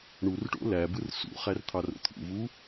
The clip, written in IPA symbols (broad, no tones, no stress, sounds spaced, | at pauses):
ɳ u r ʈ o̰ l æ b ɯ r s ṵ χ æ r t̪ʰ ɑ r o̰ t̪ʰ ṵ v u